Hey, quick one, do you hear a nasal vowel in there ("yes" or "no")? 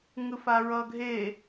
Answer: no